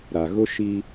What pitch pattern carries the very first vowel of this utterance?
low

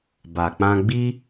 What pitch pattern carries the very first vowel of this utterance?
low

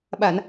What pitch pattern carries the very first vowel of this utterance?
low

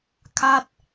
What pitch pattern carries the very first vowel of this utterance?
falling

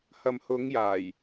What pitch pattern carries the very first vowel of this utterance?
low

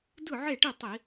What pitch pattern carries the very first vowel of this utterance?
falling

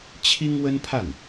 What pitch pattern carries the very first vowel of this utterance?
high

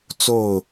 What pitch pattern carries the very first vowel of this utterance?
falling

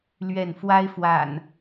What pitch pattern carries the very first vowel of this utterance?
falling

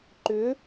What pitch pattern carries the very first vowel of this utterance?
rising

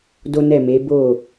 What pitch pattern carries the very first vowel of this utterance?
high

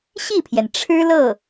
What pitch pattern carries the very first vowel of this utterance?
falling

